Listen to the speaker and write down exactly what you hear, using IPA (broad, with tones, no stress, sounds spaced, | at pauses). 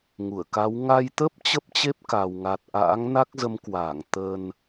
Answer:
ŋ u˧˩ ə̯ k a˨˦ w ŋ a˧ j t̪ ə˦˥ p̚ t͡ɕ ə˦˥ p̚ t͡ɕ e˦˥ p̚ k a˨˩ w ŋ a˨˩ t̚ ʔ a̰ː˧˥ ŋ n a˦˥ k̚ z ə˨˦ m k w aː˧˩ ŋ t̪ ə˨˩ n